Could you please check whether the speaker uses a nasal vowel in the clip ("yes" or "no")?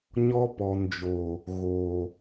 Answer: no